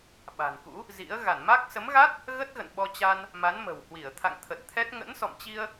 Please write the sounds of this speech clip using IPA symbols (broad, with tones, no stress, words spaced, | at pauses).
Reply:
ɓa̤˨˩nkṵ˧˥ | zḭ˧˥ə̯ ɣa˧˩nma˦˥k̚ sə˨˦mɣa˦˥t̚ | ɣə˦˥t̚ɣə̰˧˨n ɓɔ˧t͡ɕa˧n | ma˨˦nmə̤˨˩whwi˧˩ə̯ t̪ʰa̰˧˨ŋt̪ʰə˨˩t̚t̪ʰɛ˦˥t̚ ŋə̰˧˥nsɔ̰˧˨mt͡ɕi˧ə̯